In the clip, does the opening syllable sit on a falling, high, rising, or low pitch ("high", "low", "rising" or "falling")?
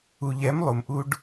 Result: low